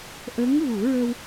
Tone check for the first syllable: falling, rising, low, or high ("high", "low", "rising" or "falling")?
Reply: rising